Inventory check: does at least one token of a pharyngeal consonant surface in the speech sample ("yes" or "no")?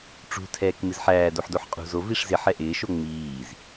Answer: yes